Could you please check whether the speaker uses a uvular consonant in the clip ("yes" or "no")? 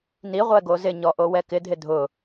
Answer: yes